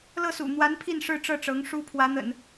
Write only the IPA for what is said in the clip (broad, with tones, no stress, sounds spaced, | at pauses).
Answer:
l ɤ˥˩ s ṵ˨˩ n̪ w a˧˥ n pʰ i˥˧ n ʂ ɻ̩˥˧ ʈ͡ʂ ɤ˥˩ ʈ͡ʂ ɤ˧˥ ŋ ʂ u˥ pʰ w ä˧˥ n̪ ə̰˨˩˦ n